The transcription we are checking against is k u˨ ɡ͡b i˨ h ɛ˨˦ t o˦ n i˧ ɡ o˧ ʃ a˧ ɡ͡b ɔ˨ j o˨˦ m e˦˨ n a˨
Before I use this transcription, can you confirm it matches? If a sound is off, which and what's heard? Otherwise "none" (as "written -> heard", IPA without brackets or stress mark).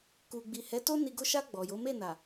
none